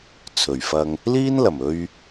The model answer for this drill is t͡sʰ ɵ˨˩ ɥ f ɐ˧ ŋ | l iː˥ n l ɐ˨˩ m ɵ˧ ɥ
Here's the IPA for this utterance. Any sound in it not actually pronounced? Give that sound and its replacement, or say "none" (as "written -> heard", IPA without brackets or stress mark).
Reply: none